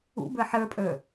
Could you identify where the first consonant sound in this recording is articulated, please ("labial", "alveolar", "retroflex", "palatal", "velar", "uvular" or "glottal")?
labial